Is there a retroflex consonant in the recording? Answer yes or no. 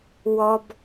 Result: no